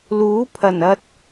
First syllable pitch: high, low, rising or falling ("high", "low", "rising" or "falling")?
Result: rising